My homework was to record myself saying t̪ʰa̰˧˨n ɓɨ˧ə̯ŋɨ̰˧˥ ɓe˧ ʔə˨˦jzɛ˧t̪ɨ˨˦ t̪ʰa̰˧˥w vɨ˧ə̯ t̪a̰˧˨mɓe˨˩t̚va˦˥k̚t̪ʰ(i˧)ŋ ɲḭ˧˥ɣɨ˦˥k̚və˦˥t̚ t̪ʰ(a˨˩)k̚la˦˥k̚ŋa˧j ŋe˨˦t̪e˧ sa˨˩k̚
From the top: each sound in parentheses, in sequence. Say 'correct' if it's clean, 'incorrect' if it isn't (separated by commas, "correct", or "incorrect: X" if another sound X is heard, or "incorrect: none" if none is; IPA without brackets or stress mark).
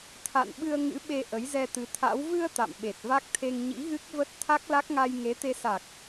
incorrect: e˧, incorrect: a˦˥